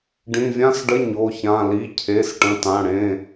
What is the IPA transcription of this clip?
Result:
ɖ ĩ˩˧˩ vʲ ã˧˥˧ s ɖ ə˧˥˧ ɲ o˩˧˩ ç ã˩˧˩ l i˩˧˩ cʰ e˩˧˩ s ʈ ə̃˩˧˩ t ã˩˧˩ ɽ ẽ˩˧˩

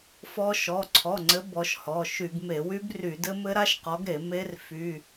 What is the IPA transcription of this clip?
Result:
f ɔ˦˥ ʃ ɔ˩˧˩ ǀʰ ɔ˩˧˩ ŋ͡ǀ ɘ˨˦ b ɔ˨˦ ʃ h ɔ˩˧˩ ʃ y˧˩˧ ɡ m e˧˩˧ w y˦˥ b r y˧˩˧ d ɘ˦˥ m ɘ˦˥ ɾ a˦˥ ʃ q ɔ˨˦ ɡ ɾ e˧˩˧ m e˦˥ r f y˩˧˩

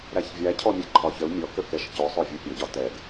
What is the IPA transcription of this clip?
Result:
ɾ æ ç vʲ æ cʰ ɔ mʲ ɛ ǃʰ ɒ ç ə l mʲ ɔ k ə k ɛ ʃ c ɔ sˤ ɔ vʲ u pʲ ʌ ɟ ɒ t ɛ ɡ

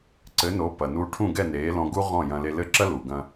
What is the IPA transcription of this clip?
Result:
ǀ ɘ˩˥ n o˩˥ p ɐ˩ n u˧ ʈʰ ũ˥˩ ɡ ɛ˥˩ n eː˩˥ l ɔ̃˧ ɡ u˥ ʁ ɔ̃˥˩ j ɐ̃˧ l e˧ l ɘ˥˩ ǁ ɐ˥ l u˩ ɡ ɐ̃˧

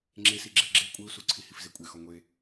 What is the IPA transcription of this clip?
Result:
ŋ͡ǁ e s i ɡ͡ǁ e ɡ͡ǁ e kʷʼ e u̯ s u ǀʰ i h i f z e kʷʼ e x ɒ ŋʷ e

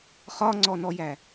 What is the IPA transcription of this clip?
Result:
χ ɒ ŋ͡ǀ ɔ n ɔ j æ

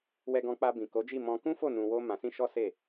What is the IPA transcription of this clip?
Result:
w ɛ˧ ɡ ɔ̃˧ k͡p a˧ b ĩ˨ k o˨˦ d͡ʒ i˦˨ m ɔ̃˧ k ũ˦ f o˦˨ n ũ˧ w o˦ m ã˧ s ĩ˦ ʃ ɔ˦ s e˦˨

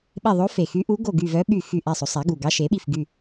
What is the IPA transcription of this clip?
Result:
ɓ e˦˨ ðˤ o˧˥ f e˨˩ x y˧˥ ʔ u˧˥ ɡ o˦˨ ɡ y˦˨ v œ˧˥ ɓ y˦˨ x y˦˨ ʔ æ˦˨ sˤ o˩˥ sˤ æ˩˥ ɡ u˨˩ ɡ ɑ˧˥ ʃ e˩˥ ɓ i˦˨ f ɡ y˦˨

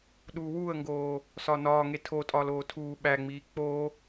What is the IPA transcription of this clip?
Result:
ɗ uː w uː ə̯ ŋ ɡ oː | s ɒ n ɒː ŋ e tʰ o tʼ ɒː l oː tʰ uː ɓ æ ŋ͡m iː k͡p o

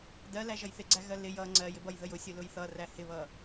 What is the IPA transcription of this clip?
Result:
d ɜ l æ ʒ ʌ j θ ɪ ɡ͡ǀ æ ɣ ɜ l ɪ j ʌ ŋ͡ǀ ɜ j ɪ b ʌ j ð ə j ʊ sʲ ʊ l ʊ j θ ʌ r æ h ɪ β ʌ

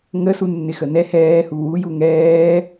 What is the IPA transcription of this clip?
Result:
ŋ ə s u nː ɪ x ə n ɛ h ɛː h u w u j u ŋ ɛː

